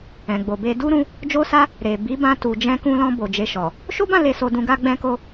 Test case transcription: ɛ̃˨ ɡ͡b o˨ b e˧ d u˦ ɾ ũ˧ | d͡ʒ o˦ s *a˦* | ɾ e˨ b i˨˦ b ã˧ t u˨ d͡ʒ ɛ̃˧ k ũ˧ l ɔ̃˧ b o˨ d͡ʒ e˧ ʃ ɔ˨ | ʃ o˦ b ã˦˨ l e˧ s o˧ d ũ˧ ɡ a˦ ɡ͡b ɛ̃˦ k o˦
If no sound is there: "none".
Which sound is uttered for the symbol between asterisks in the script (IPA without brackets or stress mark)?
a˦